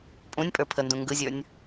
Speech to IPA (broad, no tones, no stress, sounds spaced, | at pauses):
pʼ ũ nʲ pʼ ə˞ pʰ ə n d ũ ŋ ɡ ɯ zʲ ə˞ nʲ